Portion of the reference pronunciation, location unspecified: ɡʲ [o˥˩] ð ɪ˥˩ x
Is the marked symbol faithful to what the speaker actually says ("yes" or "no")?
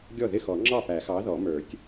no